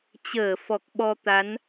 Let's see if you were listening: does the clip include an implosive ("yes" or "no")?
yes